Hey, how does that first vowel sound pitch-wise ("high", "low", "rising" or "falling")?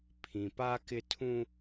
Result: low